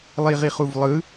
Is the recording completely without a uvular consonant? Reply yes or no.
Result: no